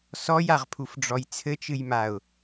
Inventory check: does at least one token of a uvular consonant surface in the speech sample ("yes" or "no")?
yes